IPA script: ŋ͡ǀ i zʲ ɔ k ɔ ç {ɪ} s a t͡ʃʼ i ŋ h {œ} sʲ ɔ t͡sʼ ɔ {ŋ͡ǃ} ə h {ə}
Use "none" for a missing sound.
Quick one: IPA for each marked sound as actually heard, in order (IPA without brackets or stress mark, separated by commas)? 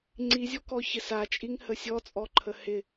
ɪ, ə, ǃʰ, ɪ